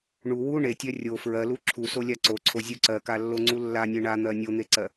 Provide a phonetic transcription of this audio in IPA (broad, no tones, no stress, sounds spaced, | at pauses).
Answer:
ɳ u w u ɳ e tʲ ɜ rʲ o f ɹ ɜ l u ǁʰ u s o lʲ a ǀ o ǀʰ o zʲ u ǀ ɜ k a lː o ŋ͡ǀ u lː a nʲ e ɳ a n̪ ɜ nʲ o n̪ e ǀ ɜ